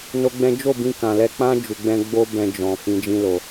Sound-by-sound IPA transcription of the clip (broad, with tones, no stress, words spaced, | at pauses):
no˦ɡ͡bɛ̃˦ d͡ʒo˦˨bĩ˧ kã˨lɛ˧k͡pã˦ d͡ʒu˧ɡ͡bɛ̃˦ ɡ͡bo˦bɛ̃˧ d͡ʒɔ̃˨ fĩ˨˦d͡ʒĩ˦lo˧